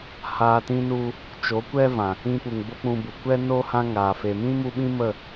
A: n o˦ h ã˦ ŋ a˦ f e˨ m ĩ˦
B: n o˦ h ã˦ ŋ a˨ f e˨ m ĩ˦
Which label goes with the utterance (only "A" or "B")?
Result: B